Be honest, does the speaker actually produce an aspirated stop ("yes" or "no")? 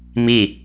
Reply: no